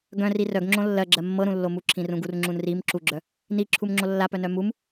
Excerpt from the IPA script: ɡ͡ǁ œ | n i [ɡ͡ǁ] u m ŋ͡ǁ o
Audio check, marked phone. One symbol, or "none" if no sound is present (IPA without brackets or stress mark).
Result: ǁʰ